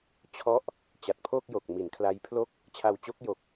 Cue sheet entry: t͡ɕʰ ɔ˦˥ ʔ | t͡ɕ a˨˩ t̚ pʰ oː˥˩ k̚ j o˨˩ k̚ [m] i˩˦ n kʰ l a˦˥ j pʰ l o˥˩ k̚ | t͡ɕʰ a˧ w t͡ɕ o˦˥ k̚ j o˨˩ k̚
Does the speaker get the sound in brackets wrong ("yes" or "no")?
no